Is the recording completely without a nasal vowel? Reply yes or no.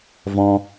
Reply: no